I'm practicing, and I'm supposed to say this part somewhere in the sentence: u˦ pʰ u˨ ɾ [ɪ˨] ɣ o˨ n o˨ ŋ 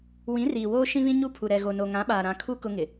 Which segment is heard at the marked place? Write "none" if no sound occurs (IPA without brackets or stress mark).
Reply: ɛ˨